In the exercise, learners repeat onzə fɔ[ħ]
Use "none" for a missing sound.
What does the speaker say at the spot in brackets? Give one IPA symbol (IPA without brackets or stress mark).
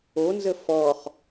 χ